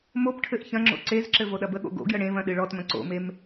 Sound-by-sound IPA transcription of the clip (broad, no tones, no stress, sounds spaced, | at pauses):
m o p ʈʰ ɘ ʔ ç ɐ̃ ŋ͡ǁ o̰ ǀ e z ǁ ɘ v o ɗ ɐ b ə ɠ o̰ ɡ o̰ ɡ j ə ɽ ẽ v ɐ̃ ɗ ɨ ɭ ɔ t m ɐ̃ ǀ o̰ m e m